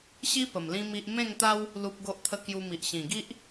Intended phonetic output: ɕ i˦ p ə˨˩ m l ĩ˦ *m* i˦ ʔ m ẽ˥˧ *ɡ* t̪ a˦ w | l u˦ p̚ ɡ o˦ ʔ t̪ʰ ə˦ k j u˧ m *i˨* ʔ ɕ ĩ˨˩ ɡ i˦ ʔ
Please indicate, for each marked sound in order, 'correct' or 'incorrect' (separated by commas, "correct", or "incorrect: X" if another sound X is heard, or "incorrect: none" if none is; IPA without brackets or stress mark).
correct, incorrect: ŋ, correct